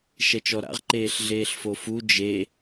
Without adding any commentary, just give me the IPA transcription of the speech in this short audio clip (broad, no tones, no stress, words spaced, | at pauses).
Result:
ʃɛt͡ʃɔɾa̰ʁ ǃeːɬɮeːɬfofu d͡ʒe